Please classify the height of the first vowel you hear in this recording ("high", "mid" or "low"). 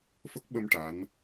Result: mid